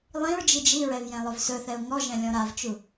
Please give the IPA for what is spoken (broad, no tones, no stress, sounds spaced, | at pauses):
lˠ ĩ ɹ d͡ʒ i d͡ʒ i ɹ ɛ v j ɛ̃ lˠ ɵ v s ɵ θ ɛ ʊ̯ ŋ ɔ ʒ ɛ̃ lʲ ɔ̃ ɾ a v t͡ʃ u